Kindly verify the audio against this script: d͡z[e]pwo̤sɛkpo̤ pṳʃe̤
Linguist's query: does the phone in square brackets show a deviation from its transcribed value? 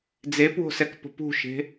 no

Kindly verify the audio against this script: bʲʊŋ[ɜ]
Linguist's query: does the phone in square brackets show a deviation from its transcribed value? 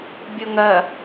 no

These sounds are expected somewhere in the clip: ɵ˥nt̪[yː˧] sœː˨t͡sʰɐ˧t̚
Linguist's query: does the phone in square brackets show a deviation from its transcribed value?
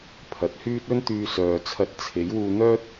no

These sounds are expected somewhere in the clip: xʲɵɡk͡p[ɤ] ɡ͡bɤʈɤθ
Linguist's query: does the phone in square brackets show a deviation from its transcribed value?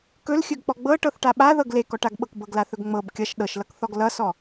yes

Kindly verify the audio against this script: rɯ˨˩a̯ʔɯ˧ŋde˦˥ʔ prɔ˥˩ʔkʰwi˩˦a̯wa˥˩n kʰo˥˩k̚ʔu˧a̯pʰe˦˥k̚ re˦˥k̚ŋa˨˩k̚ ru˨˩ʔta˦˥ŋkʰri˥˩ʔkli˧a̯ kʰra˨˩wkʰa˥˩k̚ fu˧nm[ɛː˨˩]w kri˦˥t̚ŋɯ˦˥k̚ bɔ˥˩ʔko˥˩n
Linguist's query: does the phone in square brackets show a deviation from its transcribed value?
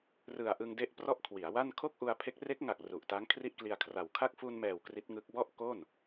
no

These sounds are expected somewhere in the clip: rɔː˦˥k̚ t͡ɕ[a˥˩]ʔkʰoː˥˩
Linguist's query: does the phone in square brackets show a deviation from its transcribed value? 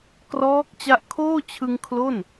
yes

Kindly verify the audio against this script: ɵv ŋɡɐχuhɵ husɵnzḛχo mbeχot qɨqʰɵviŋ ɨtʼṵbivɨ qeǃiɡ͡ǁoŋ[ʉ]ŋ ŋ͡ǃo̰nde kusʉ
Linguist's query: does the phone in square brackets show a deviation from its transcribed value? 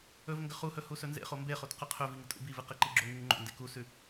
no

